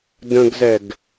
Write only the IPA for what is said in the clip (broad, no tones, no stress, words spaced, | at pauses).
də̃ɡzɛɡ